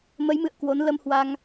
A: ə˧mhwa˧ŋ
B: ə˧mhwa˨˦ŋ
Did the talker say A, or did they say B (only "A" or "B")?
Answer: A